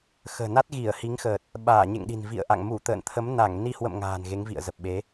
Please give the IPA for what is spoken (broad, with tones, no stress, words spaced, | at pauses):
xə̤ː˨˩na˦˥t̚ ɣi˧˩ə̯hi˨˦ŋxəː˨˩t̚ | ɓaː˧˩ɲḛ˧˨ŋɗi̤˨˩n vḭ˧˨ə̯ʔa̰˧˨ŋ mu˧˩t̪ə̰ː˧˨nt̪ʰə˨˦m na˧˩ŋni˧ hwə̰˧˨m ŋa̤ː˨˩nɣe˨˦ŋvḭ˧˨ə̯ zə˨˩p̚ɓe˨˦